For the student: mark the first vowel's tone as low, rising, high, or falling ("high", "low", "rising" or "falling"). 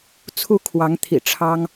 rising